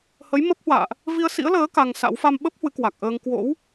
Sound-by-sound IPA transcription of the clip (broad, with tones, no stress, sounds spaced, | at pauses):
h ə˨˦ j m ə˦˥ p̚ h w a̰ː˧˨ ʔ | v i˧ ə̯ s ḭ˧˥ ə̯ l əː˨˦ k a˧ ŋ s a̰˧˥ w f a˧ m ɓ ə˦˥ p̚ h w ɨ˨˦ k w a˨˩ k̚ ʔ əː˧ ŋ k w o̰˧˥ w